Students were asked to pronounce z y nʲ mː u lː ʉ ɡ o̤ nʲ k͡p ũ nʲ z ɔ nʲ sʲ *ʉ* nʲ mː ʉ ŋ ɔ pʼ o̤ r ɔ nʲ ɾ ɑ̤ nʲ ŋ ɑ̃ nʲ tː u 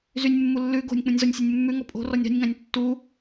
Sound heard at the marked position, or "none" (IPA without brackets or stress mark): ʉ